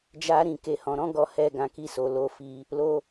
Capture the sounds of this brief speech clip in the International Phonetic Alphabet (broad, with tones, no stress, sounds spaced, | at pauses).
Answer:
d͡ʒ a˦ ɾ ĩ˧ k e˧ h ɔ̃˧ ɾ ɔ̃˦ ɡ ɔ˧ h ɛ˧ ɡ ã˨ k i˧ s o˨ l o˧ f i˧ | l o˦